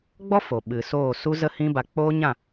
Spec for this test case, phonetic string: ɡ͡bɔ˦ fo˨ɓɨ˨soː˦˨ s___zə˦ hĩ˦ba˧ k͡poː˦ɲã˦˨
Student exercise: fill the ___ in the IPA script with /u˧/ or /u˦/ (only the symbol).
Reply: u˦